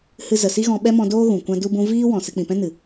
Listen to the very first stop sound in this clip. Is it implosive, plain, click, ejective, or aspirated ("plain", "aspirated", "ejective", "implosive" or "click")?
implosive